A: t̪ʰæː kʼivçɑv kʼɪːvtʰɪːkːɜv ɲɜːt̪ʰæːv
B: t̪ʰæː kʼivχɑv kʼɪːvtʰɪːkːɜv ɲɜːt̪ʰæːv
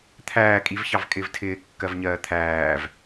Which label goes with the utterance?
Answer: A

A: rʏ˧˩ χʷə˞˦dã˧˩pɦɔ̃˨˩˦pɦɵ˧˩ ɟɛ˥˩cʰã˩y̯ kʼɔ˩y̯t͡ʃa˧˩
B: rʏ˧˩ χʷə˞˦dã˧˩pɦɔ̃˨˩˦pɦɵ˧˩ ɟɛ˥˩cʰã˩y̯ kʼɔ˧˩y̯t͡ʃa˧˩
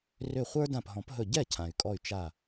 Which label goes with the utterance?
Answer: B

